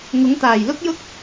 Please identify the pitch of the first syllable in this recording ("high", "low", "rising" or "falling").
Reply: rising